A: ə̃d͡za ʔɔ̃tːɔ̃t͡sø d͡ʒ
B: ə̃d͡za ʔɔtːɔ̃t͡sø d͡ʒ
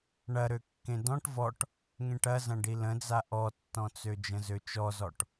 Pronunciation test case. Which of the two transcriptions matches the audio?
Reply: B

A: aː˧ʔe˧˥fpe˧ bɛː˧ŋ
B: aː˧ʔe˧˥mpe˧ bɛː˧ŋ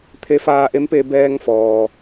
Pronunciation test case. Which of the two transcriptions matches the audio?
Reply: B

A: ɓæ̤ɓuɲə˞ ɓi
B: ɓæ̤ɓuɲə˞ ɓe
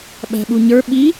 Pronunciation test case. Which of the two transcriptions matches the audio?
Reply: A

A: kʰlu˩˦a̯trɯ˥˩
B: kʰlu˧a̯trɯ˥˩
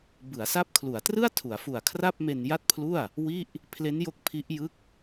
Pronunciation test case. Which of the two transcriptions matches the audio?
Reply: A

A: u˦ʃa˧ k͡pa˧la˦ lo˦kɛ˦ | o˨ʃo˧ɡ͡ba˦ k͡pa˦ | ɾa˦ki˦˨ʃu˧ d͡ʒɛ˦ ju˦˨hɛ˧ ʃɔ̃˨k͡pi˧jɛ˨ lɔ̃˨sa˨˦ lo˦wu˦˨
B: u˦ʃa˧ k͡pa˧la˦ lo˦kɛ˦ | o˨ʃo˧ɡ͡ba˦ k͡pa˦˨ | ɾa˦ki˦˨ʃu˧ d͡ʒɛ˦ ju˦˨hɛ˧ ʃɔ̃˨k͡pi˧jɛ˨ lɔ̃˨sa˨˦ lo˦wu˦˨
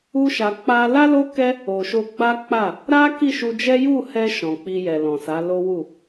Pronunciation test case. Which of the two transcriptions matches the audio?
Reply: B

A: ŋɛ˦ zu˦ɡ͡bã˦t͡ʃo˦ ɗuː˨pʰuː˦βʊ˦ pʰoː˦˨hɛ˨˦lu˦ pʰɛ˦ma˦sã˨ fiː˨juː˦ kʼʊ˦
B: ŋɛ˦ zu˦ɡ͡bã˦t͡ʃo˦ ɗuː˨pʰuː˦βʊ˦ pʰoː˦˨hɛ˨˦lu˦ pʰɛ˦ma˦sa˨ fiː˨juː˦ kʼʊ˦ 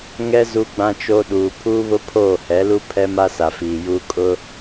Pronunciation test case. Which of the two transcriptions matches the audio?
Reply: B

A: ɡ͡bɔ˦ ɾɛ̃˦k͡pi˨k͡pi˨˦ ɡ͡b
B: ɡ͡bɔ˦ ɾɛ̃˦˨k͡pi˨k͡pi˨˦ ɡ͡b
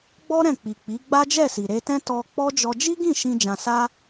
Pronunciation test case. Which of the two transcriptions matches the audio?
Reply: B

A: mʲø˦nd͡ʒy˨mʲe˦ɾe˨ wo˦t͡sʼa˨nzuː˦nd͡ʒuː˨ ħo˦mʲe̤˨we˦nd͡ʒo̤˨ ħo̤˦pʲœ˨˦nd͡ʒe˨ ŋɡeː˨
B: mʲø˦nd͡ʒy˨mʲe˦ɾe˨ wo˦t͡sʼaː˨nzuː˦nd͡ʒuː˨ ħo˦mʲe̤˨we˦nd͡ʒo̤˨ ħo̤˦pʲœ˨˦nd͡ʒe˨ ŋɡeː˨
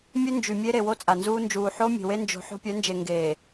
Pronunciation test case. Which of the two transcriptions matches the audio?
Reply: A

